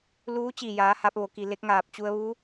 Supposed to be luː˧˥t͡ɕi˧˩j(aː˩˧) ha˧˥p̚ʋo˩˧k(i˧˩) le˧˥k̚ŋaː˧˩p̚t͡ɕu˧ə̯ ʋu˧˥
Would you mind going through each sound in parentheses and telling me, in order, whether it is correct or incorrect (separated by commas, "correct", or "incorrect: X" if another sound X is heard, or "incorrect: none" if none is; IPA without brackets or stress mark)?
correct, incorrect: i˩